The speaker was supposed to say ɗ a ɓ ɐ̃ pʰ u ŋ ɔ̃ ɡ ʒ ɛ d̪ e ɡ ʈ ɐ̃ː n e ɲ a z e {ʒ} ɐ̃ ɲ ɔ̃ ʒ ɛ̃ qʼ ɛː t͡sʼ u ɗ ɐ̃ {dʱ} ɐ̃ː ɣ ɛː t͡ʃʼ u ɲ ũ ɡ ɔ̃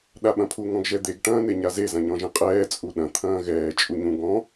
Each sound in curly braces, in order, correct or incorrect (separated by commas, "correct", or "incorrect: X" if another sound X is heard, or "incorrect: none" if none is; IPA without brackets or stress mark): incorrect: z, incorrect: t̪ʰ